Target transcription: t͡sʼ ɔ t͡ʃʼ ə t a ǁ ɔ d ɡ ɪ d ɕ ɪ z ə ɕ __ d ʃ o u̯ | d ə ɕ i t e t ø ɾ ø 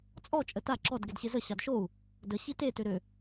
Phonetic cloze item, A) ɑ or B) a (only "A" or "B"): A